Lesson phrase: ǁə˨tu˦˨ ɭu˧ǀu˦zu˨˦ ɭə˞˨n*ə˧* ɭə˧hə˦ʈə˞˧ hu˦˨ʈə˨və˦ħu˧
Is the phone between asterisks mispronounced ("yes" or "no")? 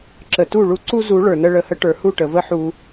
no